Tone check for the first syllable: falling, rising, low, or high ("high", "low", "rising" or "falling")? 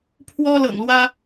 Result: high